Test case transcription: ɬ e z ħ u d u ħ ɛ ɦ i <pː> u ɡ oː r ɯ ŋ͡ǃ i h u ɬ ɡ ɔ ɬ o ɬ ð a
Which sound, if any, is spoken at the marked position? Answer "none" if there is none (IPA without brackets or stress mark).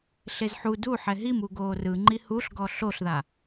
m